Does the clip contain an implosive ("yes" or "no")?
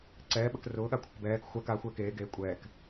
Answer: yes